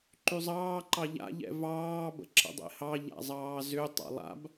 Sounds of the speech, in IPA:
ǃ y zˤ ɑː ǃ ɑ ʎ a̰ ʎ ɛ̰ v ɑː b ə̰ ǁ ə̰ dˤ ḛ h ɑ ʎ a̰ zˤ ɑː z ʏ tˤ ɑ̰ lˠ a̰ b

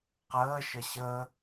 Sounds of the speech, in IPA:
q əː ʃ ə ɕ əː

